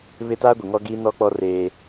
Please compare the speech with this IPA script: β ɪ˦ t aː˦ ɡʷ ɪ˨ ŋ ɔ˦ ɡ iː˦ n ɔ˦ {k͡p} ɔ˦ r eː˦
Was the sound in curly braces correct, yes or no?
yes